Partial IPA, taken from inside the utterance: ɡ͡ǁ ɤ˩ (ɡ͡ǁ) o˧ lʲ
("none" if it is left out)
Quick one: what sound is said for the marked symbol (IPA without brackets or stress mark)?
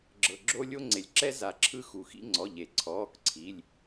ɡ͡ǁ